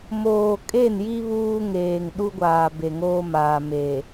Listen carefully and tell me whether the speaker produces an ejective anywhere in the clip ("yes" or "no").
yes